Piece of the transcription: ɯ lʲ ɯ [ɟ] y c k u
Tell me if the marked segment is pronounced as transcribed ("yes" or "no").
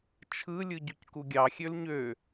yes